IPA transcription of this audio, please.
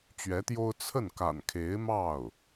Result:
t͡ɕ ɥ ɛ˧˥ t̪ j o˥ ʊ̯ t͡sʰ ə˥˩ n k a̰˨˩ n kʰ e˧˥ ɪ̯ m ɑ˥˩ ʊ̯

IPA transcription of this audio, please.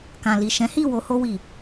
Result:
k ã˨ l i˨ ʃ ɛ̃˨˦ h i˦˨ w o˧ h o˧ w i˨

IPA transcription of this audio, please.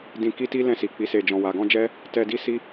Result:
d ĩ˧ k i˦ t i˦ l ɛ̃˧ s i˨ k͡p i˨ s e˨ d͡ʒ ɔ̃˨ w a˨ ɡ ɔ̃˧ d͡ʒ ɛ˦ | t ɛ˧ d i˦ s i˦

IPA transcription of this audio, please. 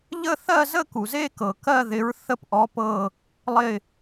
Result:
ʎ ə˥˧ θ ɜ˥˧ z ə˥˧ k u˨ z e˥˧ k ɤ˨ k ɜ˥˧ ð ɪ˧˥ ɹ θ ə˥˧ p ʔ ɔ˧˥ p ɤ˥˧ | lˠ ɪ˥˧

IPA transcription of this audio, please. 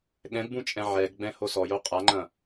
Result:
ɠ ɛ̃ ɡ b ũ t͡ʃʼ ɛ̃ ʕ ɛ ɡ ɡ͡b ɛ̃ h o s ɔ j o qʼ a ŋ͡ǃ ɐ̃

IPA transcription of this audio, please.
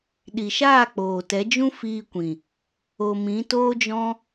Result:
ɗ i˨ ʃ aː˦˨ k͡p oː˨ t ɛ˨˦ d͡ʒ ũ˦ f iː˧ kʷ ĩ˨ | o˨ m ĩ˨˦ t oː˦ d͡ʒ ɔ̃˦

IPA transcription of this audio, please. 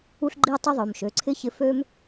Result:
u˦ ɬ ɡ͡ǃ i˦ ʊ̯ tˤ ɯ˦ ðˤ ø˩˧˩ m ʃ ø˩˧˩ ǀʰ ɪ˦ ç ɪ˨˥ f ø˦ m

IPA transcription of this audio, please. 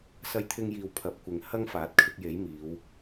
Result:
s ɐ˧ j t̪ʰ ɪ˧ ŋ j iː˨ w pʰ ɐ˨˥ p̚ kʷ ɪ˨ ŋ h ɐ˥ ŋ f aː˨˥ t̚ kʰ ɪ˧ k̚ j e˨˥ j m iː˨˧ w

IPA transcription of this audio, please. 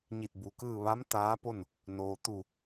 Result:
ɲ i˧˩ t̚ b u˩ k ɯː˥˨ ʋ a˧˥ m t̪ aː˧˥ p o˥˨ n | n oː˩ t̪ u˧˩

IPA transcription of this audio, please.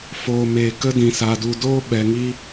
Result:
f oː˨ m eː˨ k ə˦ d ĩ˨ s a˨ d u˨ d oː˦ ɓ ɛ˨ ŋ i˦

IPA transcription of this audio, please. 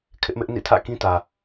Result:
kʰ ɪ˦ ʔ m ɪ˦ ʔ n ḭ˦˨ tʰ ä̰˦˨ k ĩ˦ t ä˨

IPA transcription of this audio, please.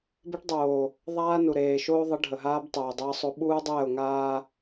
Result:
b e˦ ʈ dˤ oː˨ | ðˤ aː˦ n u˨ ɾ eː˨ ʃ oː˦ ðˤ ə˨˦ ɖʱ ə˨ ɦ aː˦ b tˤ oː˨ dˤ əː˦ sˤ o˦ ɓ uː˦ dˤ ɛː˦˨ ʊ̯ ŋ aː˦

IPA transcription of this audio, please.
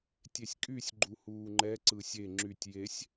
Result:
tʲ e sʲ kʼ y sʲ ɡ͡ǃ u h uː ŋ͡ǃ ɛ ǀ ɯ sʲ e ŋ͡ǁ y tʲ j e sʲ

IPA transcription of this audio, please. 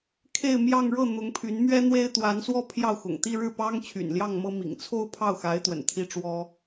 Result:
kʰ e˥˧ ɪ̯ m j ɑ˥˧ ŋ ɻ ɤ˥˩ n̪ ʊ˧˥ ŋ pʰ y˧˥ n m ɥ ɛ˥ n̪ w e˥ ɪ̯ t̪ w a˧˥ n s w ɔ˥ pʰ j ɑ˥˩ ʊ̯ x ʊ̰˨˩ ŋ t̪ i˥˧ ɻ ɻ̩˥˩ p ɑ˥ ŋ t͡ɕʰ y̰˨˩ n l j ɑ˥˩ ŋ m ɤ˥ m ḭ˨˩ ŋ t͡sʰ o˥ ʊ̯ pʰ ɑ˥˩ ʊ̯ x a˧˥ ɪ̯ t̪ w ə̰˨˩ n t̪ʰ i˥ ʈ͡ʂ w ɔ˥

